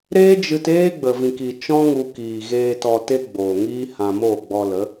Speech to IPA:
ɾ eː˦ d͡ʒ ɨ˧ t eː˦ ɡ͡b ə˨ v ĩ˨ k i˨ t͡ʃ ɔ̃˦ ŋ u˧ k iː˨ ɣ eː˧ t ɔ˧ t e˦ ɡ͡b oː˨ ŋ iː˦ h ã˧ m oː˦˨ ɡ͡b ɔ˧ l ə˨˦

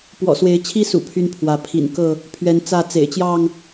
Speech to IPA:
p w ɔ̰˨˩ s w e˨˦ ɪ̯ t͡ɕʰ i˦ s ṵ˨˩ pʰ y˦ n pʰ w ä˨˦ pʰ ḭ˨˩ n k ɤ˥˨ | pʰ ɥ ɛ˨˦ n t͡s ä˥˨ t͡s ḛ˨˩ ɪ̯ t͡ɕ j ɑ˥˨ ŋ

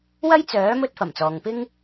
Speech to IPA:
w ɐ˥ j t͡s œː˨˥ m ɵ˥ t̚ f ɐ˨˩ m t͡s ɔː˨ ŋ p ɪ˥ ŋ

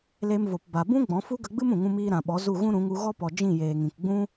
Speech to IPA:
l e˧ m v o˨ p b a˨ b ũ˦ ɡ͡b ɔ̃˨˦ f u˦ ɡ ə˧ ɡ͡b ɨ˦ m ũ˨ ŋ ũ˦ m iː˦ ɾ ã˨ ɓ ɔ˨˦ z u˦˨ ɣ ũ˦ ɾ ũ˨˦ ŋ u˧ ɣ ɔ˦ p ɔ˨ d͡ʒ ĩ˦˨ j eː˨ ŋ ĩ˨ k ɡ͡b ũ˦

